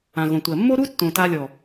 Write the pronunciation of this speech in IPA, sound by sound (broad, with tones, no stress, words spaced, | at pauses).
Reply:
ã˨ɣõ˨tʷɜ˨ mːo˦ɾu˦tːõ˨ ta˧lʲɔ˨